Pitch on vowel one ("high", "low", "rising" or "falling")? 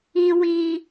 high